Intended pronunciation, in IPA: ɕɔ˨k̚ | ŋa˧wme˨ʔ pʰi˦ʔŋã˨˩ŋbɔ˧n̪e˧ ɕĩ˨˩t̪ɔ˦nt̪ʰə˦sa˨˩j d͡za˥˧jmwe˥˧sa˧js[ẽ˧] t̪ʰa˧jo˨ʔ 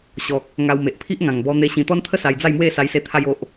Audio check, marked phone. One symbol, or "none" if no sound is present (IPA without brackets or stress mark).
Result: e˧